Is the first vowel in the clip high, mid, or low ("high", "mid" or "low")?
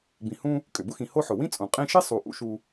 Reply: high